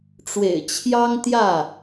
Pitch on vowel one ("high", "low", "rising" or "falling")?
low